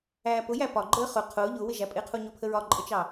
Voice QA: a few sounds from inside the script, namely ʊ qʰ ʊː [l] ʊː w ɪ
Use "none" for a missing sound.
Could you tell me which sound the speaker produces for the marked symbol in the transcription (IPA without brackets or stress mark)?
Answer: ʎ